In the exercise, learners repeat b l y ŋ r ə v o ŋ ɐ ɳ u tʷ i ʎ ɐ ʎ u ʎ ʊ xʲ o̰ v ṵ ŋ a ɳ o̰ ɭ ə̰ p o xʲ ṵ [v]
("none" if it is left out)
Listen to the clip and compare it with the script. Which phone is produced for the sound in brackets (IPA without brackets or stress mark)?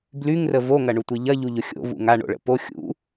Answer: none